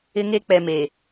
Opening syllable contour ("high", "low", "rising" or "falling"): high